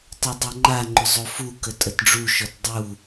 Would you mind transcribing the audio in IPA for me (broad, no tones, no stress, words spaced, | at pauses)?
tˤodˤoŋ͡ǃaŋ͡ǃʏ zˤofukə tʼətɖ͡ʐuʃɔt dˤu